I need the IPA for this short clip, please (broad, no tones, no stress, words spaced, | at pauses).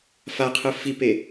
faqʰɯ fipe